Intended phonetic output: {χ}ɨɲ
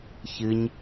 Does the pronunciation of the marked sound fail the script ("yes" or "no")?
yes